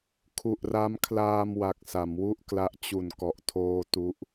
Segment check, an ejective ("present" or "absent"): absent